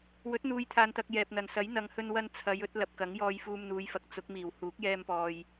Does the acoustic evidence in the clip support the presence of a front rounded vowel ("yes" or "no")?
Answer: no